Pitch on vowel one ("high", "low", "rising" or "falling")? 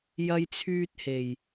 high